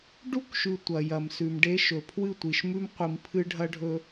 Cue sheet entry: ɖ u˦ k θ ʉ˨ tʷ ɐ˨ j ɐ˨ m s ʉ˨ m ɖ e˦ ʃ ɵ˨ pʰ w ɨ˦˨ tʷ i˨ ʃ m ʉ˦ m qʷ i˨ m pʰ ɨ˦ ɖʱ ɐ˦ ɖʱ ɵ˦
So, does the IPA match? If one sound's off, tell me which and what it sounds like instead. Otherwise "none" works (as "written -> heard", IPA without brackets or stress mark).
θ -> ʃ